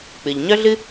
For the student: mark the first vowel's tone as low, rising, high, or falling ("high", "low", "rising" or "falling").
low